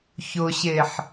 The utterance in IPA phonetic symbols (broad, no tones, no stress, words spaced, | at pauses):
çʊɕeħ